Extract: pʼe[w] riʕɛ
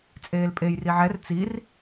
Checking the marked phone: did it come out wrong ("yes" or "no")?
yes